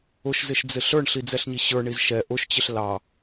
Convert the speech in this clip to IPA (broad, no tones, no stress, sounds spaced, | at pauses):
ʊ ʃ z ɪ ʃ d͡z ɪ ɬ ə˞ ɳ ɬ i d͡z ɛ ɬ ɲ i ɕ ə˞ ɳ i z ʃ ɛ ʔ ʊ ʃ t͡ɕ ɪ ɬ l ɑ